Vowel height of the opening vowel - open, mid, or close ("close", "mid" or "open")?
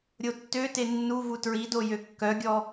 mid